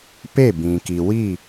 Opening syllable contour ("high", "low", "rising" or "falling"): falling